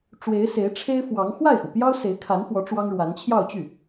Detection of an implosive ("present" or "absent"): absent